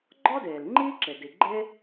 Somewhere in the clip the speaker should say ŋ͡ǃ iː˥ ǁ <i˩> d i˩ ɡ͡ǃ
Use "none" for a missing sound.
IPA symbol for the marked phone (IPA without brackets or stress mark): e˩